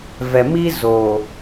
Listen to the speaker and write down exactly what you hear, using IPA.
v ɛ˨ m i˦ z oː˨

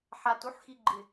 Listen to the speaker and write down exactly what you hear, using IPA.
ħ a t u ħ x i ɡ͡ǃ ɪ

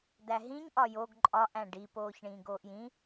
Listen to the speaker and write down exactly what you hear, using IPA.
d æ ɦ ĩ ɲ ʔ ɒ j o ɡ ǃʼ ɒ ʔ æ̃ ɖ i p oː ç ɳ ĩː ɡ oː ʔ j ĩ

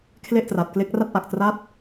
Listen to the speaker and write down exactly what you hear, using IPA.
kʰ l e˥˩ ʔ t r a˨˩ t̚ k l e˦˥ k̚ r a˥˩ t̚ ʔ a˨˩ k̚ t r a˥˩ t̚

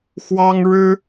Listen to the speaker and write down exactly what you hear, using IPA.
x w ɑ˥ ŋ ɻ ɻ̩˥

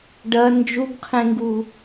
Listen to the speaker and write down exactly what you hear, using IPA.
ɖ ɐ n d͡ʒ u ɡ qʰ ẽ ŋ ɡ u

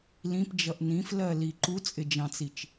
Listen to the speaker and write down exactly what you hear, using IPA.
l ĩ p d͡ʒ ʌ ʔ n ĩ f l ɜ l i ǃ u t͡sʼ ɪ d͡ʒ ɑ̃ t͡s i t͡ʃ

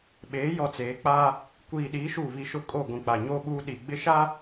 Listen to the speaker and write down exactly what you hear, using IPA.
ɓ eː˨˦ j ɔ˨ t͡s eː˨˦ k͡p aː˦ | kʷ iː˨ ɗ iː˨˦ ʃ u˦˨ β i˦ ʃ ʊ˦ kʼ o˦˨ ɡʷ ĩ˨ k͡p a˨ ɲ oː˦ ɓ uː˦ ɗ i˦ ɡ͡b ɪ˦ ʃ a˦

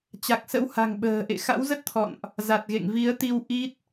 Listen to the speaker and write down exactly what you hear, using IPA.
t͡ɕ a˨˩ k̚ s ə̰˧˥ w h a̤˨˩ ŋ ɓ ə̤ː˨˩ ʔ ḛ˧˨ x a̰˧˥ w z ə˦˥ t̚ t̪ʰ ɔ̰˧˨ n ʔ | z a˨˩ t̚ ɣ ḛ˧˨ ŋ v i˨˦ ə̯ t̪ i˧ w ʔ i˦˥ t̚

